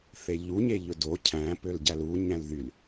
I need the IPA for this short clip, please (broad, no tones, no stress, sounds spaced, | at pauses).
θ e ʎ u ɲ e ʎ ɵ d o cʰ æ̃ p ø l ɟ æ l u ɲ æ̃ l ð y l